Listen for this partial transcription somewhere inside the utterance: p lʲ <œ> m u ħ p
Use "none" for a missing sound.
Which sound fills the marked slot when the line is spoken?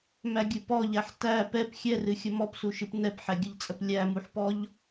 æ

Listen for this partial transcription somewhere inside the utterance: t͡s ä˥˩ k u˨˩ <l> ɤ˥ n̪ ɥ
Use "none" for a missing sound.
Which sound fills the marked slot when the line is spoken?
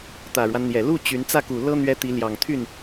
l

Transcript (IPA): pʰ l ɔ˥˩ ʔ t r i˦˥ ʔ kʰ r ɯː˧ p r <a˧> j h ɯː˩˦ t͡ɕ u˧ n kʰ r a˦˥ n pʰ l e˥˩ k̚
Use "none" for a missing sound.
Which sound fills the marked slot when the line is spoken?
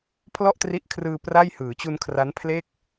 a˥˩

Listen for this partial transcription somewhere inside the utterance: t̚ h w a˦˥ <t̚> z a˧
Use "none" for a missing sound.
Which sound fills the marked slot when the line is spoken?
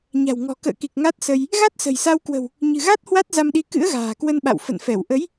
t̚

